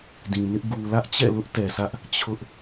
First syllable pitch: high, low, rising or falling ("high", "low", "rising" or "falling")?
low